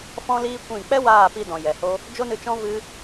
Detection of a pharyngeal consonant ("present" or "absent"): absent